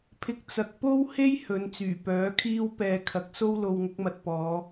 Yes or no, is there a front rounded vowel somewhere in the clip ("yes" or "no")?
yes